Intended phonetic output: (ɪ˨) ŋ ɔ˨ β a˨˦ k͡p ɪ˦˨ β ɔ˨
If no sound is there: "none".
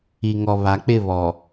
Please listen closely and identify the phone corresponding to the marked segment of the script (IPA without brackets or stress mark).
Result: i˨